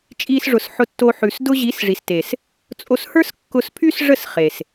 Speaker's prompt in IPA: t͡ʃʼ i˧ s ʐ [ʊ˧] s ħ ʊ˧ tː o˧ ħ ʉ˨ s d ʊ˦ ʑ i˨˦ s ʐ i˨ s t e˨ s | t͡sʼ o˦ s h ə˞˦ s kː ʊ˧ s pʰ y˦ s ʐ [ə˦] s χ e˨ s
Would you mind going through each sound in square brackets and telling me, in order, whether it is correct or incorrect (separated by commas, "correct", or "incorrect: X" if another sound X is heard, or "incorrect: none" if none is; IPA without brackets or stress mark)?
incorrect: ʊ˨, incorrect: ə˦˨